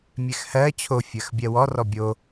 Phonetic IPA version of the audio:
mʲ ɛ x h ɜ t͡ɕʰ o fʲ ɜ x bʲ ɜ w ɔ r ɔ bʲ o

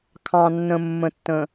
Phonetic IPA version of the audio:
kʰ ɑ̃˨ nː ə̃˨ mː ə̃˨ tː ə̃˨

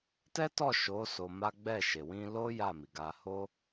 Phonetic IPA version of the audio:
t ɛ˦ t ɔ˦˨ ʃ o˨˦ s o˧ m a˦ ɡ͡b ɛ˦˨ ʃ e˨ w ĩ˧ l o˦ j a˦˨ m i˨ ɡ a˧ h o˦

